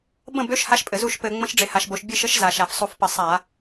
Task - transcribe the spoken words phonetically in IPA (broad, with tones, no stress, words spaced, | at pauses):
bə̃˥˩bø˧˥ʃ ha˧˥ʃpʼɘ˩˧ zu˥˩ʃpɘ˧˩˧ ŋ͡mə̃˧˥ʃɖ͡ʐe˩˧ha˩˧ʃbo˩˧ʃ bʲɨ˥˩ʃə˧˥ʃ za˩˧ʃ a˧˩˧fsˤu˧˩˧fpə˧˩˧ sˤa˧˩˧